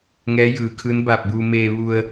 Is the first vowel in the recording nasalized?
no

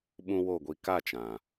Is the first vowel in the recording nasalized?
yes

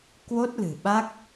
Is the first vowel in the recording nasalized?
no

